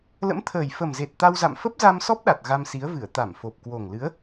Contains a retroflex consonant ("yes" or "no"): no